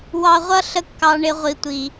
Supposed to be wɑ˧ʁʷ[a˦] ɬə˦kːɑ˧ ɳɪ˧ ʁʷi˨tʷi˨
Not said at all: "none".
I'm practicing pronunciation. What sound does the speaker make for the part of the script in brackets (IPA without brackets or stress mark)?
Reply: ʌ˦